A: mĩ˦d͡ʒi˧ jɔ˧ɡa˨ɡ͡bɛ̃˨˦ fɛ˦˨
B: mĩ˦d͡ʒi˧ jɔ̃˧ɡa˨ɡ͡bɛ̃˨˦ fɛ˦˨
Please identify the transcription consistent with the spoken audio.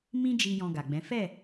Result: B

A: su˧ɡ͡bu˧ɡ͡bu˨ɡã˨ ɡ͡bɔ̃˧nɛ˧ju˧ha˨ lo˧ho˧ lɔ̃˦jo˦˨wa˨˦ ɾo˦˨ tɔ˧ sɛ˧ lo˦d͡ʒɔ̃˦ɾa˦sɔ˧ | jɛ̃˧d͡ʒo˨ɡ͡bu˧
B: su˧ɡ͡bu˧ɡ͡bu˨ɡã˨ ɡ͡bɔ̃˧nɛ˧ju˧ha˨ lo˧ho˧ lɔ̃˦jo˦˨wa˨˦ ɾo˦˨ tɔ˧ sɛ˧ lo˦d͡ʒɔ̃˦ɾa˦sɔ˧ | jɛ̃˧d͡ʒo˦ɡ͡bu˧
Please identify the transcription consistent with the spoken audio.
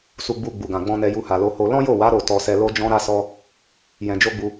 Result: B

